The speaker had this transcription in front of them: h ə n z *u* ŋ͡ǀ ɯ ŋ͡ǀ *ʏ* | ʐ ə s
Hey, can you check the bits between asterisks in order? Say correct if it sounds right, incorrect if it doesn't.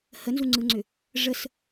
correct, correct

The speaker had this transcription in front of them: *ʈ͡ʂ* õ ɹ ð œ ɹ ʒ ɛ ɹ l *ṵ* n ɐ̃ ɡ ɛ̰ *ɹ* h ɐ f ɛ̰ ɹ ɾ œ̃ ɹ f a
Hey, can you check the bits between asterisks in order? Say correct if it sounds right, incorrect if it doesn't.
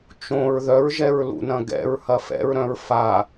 incorrect, correct, correct

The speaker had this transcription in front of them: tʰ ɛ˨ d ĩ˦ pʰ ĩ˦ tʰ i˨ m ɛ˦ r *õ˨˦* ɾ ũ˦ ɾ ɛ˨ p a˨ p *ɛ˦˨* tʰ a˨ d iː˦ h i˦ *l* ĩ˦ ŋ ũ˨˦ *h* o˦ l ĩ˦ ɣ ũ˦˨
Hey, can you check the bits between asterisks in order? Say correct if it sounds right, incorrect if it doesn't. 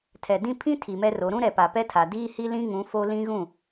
incorrect, incorrect, correct, incorrect

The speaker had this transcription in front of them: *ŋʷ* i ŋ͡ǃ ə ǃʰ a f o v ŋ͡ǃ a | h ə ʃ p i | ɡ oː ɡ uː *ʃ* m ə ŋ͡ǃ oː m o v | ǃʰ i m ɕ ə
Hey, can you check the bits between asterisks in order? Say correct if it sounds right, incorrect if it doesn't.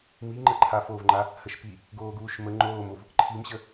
incorrect, correct

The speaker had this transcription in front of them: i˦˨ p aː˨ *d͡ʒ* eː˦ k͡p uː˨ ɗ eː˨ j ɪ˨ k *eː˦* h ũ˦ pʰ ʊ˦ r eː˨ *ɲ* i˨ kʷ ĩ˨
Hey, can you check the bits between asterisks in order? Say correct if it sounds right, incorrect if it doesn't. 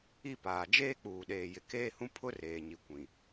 correct, correct, correct

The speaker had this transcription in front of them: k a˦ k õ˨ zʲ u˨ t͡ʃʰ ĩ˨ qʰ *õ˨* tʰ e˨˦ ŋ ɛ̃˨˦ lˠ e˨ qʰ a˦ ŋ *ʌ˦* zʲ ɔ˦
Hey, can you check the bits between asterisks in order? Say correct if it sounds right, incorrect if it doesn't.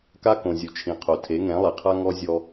incorrect, incorrect

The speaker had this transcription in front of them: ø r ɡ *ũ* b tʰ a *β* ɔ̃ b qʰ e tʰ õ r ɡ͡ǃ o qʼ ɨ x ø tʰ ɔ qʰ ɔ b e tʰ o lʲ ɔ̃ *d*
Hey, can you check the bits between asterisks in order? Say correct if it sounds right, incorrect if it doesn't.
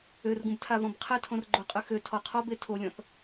correct, correct, incorrect

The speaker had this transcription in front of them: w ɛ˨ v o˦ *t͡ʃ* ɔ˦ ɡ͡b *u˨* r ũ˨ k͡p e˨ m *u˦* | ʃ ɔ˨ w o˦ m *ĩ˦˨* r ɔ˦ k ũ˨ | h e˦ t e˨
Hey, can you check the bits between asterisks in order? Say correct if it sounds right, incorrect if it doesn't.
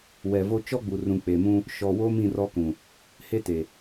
correct, correct, incorrect, correct

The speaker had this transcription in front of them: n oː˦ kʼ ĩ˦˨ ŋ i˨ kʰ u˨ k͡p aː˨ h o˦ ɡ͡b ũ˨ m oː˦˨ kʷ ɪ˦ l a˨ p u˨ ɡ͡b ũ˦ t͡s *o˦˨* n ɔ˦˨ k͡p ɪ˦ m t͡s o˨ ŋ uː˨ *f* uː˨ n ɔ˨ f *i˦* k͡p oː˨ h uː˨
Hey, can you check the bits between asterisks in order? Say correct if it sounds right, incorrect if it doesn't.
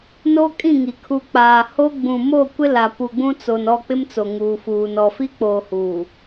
incorrect, correct, correct

